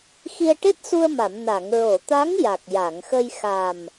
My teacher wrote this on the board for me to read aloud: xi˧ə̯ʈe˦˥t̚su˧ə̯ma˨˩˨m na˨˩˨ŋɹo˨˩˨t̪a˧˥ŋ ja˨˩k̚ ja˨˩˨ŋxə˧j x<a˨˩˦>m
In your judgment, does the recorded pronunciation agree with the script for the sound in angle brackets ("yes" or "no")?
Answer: no